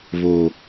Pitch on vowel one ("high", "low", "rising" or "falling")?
low